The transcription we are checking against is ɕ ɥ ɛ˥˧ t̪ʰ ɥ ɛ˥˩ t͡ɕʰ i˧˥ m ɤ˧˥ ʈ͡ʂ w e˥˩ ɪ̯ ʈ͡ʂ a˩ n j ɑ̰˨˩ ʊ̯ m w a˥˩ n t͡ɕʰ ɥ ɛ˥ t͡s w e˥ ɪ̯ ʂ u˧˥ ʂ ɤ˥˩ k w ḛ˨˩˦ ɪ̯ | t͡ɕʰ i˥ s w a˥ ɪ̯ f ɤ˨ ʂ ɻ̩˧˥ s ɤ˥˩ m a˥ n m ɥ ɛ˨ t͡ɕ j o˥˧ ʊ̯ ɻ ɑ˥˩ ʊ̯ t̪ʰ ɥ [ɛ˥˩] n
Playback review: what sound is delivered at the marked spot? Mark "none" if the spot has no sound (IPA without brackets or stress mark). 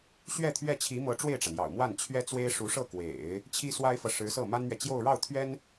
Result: ɛ˥